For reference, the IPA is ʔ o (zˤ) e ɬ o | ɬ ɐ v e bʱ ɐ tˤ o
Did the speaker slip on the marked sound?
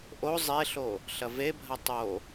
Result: no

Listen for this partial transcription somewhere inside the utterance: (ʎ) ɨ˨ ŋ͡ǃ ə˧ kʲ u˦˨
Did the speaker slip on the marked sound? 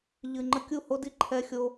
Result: no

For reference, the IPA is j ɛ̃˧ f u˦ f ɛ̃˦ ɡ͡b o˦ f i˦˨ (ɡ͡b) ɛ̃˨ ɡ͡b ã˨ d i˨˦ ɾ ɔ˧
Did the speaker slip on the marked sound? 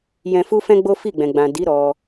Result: no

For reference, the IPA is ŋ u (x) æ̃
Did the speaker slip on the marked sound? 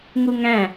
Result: yes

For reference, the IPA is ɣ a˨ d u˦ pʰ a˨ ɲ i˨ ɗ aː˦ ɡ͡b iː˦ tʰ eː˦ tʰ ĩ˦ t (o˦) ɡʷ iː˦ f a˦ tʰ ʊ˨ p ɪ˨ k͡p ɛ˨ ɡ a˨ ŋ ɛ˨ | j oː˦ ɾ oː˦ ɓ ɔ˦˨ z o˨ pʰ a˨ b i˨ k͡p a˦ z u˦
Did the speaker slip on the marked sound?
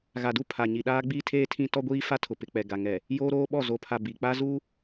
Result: yes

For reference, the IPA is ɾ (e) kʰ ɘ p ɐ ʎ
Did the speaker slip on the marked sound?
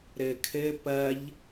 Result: yes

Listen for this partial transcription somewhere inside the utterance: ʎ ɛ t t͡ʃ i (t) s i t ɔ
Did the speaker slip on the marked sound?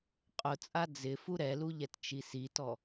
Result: yes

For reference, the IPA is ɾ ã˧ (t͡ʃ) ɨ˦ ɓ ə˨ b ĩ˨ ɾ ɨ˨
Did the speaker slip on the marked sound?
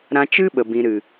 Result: no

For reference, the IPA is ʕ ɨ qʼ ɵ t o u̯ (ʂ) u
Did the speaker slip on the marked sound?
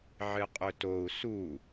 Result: yes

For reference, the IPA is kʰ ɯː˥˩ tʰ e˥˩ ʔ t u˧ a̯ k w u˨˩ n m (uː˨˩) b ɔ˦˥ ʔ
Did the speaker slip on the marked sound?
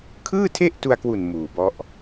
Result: no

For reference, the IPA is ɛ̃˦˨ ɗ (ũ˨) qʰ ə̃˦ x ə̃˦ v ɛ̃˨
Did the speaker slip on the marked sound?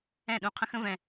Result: no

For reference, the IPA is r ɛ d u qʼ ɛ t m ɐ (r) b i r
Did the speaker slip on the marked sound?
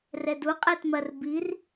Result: no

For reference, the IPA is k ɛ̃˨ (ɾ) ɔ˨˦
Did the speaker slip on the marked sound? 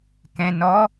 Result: yes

